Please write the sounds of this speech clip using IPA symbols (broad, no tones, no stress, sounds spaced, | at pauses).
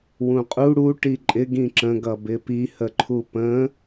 w ũ qʼ u ɽ u ʈ i ǃʼ ɪ ɡ ĩ ǁ ə̃ ɡ ʌ b ɪ p i h ə ǃʰ u p ə̃